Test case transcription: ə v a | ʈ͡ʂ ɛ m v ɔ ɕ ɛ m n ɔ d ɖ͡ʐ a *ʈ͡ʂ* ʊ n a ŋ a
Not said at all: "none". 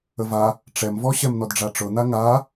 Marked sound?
ʈ͡ʂ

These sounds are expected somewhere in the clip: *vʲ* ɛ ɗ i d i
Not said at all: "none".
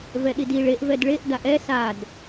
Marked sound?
v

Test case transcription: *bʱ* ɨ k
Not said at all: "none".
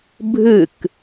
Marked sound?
bʱ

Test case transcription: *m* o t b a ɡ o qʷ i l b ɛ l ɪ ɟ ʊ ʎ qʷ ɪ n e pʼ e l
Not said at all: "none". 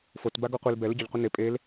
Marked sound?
f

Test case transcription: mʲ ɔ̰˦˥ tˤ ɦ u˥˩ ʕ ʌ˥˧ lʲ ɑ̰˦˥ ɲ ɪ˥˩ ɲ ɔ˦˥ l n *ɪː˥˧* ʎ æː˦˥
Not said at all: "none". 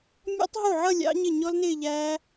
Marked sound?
ɪː˥˧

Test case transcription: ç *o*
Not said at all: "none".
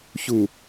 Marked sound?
u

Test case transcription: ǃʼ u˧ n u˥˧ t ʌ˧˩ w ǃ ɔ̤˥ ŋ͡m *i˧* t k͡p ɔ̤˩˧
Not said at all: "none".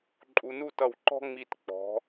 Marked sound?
i˧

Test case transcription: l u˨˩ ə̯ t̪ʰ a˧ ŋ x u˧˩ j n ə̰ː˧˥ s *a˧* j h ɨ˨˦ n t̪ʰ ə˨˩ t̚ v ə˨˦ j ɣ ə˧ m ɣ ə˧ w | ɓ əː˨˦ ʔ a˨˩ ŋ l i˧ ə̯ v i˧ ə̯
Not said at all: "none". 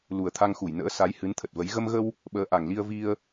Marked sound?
a˨˦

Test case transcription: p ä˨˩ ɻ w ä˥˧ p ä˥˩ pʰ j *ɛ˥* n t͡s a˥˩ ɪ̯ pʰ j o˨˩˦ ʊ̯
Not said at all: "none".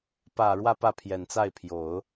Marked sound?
ɛ˨˩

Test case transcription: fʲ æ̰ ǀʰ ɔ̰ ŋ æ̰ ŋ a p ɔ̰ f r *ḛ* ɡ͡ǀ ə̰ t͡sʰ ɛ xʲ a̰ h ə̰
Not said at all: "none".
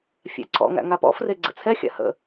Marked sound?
e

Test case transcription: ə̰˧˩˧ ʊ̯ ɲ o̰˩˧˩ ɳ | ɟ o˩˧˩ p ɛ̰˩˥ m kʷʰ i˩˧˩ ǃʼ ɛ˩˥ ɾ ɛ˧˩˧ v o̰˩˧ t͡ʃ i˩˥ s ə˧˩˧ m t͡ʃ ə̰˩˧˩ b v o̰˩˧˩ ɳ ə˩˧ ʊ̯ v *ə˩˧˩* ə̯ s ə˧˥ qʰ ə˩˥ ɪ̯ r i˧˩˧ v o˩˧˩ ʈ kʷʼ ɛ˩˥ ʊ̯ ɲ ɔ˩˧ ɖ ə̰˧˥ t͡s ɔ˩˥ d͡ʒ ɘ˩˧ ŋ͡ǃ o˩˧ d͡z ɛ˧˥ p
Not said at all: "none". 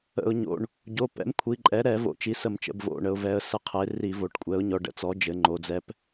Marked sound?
ɛ˩˧˩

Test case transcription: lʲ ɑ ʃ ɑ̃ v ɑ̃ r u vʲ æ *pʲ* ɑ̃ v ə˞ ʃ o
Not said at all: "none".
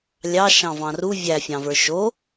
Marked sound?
fʲ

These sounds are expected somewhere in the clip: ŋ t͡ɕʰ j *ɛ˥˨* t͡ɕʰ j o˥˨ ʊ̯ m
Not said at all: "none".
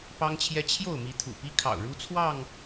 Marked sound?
ɛ˦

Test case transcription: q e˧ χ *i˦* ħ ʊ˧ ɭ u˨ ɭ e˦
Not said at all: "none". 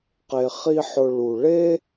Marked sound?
i˦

